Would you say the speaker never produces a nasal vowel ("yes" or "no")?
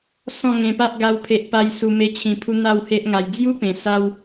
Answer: no